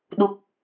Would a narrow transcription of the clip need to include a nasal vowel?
no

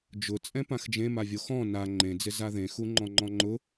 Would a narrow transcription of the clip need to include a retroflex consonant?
no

